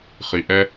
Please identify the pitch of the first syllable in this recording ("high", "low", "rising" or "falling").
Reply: low